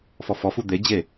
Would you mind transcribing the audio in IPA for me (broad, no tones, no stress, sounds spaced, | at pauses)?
f ɔ f ɔ f u d̪ e d͡ʑ e